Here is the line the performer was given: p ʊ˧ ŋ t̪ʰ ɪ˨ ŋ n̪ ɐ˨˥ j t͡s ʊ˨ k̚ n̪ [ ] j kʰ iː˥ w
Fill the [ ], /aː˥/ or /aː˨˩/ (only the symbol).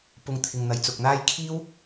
aː˥